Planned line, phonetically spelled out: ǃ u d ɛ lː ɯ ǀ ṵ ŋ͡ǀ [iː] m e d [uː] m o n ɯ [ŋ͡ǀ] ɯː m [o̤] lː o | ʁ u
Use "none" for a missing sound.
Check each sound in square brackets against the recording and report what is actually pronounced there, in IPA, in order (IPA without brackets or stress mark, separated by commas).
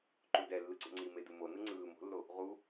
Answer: i, u, ŋ͡ǀ, o̤